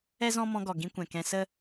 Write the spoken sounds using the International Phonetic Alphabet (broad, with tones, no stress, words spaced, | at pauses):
ɛ˦zɔ̃˦mɔ̃˧ ɡɔ˨ɡĩ˧kʷɛ̃˨ kɛ̃˧sə˦